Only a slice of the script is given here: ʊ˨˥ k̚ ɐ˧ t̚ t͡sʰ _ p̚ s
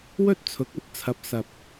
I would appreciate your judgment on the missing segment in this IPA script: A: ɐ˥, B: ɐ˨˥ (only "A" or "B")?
B